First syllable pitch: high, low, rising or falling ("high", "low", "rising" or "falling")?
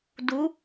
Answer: rising